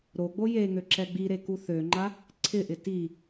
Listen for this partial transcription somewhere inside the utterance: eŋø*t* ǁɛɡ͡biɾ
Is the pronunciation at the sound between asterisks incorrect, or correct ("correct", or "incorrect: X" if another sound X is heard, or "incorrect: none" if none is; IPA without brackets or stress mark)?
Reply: incorrect: none